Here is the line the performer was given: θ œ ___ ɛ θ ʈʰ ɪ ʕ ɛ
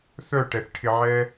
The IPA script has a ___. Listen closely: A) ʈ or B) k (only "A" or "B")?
A